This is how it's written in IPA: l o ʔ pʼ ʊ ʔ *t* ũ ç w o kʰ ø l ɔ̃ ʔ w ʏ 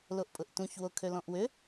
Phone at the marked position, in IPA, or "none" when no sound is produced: t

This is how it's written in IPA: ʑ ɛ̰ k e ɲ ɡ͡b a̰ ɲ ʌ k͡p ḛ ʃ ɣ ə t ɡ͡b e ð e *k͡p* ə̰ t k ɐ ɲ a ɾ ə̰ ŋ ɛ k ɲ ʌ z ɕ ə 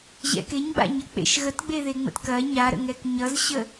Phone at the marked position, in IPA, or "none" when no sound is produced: ŋ͡m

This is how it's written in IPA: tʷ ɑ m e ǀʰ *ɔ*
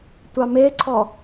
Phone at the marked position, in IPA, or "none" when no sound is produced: ɔ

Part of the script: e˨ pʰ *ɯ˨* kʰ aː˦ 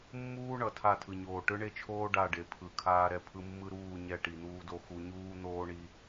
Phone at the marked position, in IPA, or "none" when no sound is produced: ɯ˨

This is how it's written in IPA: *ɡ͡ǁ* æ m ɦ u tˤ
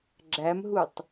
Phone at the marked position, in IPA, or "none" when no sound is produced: ɡ͡ǁ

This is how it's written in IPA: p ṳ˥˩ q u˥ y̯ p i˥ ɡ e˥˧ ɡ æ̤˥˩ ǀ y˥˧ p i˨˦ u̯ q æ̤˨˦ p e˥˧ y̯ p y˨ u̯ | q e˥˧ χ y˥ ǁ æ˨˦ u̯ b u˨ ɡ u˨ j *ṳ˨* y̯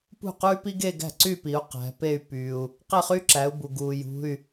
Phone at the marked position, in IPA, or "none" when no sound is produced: ṳ˧˥˧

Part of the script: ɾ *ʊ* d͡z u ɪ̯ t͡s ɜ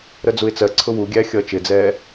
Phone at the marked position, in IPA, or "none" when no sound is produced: ə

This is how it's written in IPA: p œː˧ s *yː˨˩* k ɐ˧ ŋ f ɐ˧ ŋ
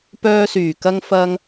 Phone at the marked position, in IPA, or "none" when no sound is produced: yː˨˩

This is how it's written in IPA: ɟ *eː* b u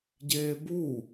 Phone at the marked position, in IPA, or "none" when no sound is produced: eː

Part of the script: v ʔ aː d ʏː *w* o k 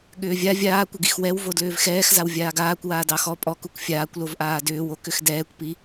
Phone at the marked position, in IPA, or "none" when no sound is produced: w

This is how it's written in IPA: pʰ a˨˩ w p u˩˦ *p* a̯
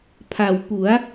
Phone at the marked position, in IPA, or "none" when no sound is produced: none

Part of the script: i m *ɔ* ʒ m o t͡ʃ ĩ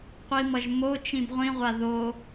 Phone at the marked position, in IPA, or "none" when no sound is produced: ʌ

